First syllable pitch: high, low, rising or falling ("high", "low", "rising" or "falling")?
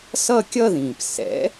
falling